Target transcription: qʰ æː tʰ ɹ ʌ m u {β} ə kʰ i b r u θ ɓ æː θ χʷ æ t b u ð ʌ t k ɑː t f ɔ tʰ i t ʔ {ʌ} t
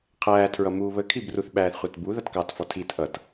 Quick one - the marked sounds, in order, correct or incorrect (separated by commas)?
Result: correct, correct